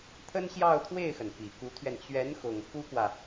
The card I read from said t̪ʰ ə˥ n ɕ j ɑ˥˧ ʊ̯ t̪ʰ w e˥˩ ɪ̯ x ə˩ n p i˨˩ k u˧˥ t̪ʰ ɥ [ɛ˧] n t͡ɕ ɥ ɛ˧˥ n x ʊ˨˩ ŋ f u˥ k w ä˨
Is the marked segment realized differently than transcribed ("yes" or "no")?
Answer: no